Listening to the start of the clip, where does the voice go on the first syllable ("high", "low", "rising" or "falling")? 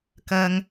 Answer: high